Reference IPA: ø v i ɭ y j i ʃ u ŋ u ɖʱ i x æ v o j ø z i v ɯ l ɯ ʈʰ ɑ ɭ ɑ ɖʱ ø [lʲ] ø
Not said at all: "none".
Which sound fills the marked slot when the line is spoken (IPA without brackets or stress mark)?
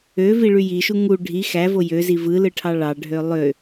lˠ